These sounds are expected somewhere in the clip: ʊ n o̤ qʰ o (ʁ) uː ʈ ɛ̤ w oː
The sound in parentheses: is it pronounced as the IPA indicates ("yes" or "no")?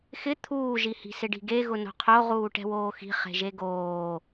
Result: yes